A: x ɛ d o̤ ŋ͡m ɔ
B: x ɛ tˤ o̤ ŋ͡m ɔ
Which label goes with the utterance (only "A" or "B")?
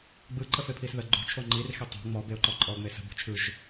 B